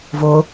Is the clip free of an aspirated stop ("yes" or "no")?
yes